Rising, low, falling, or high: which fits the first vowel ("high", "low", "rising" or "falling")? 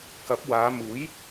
rising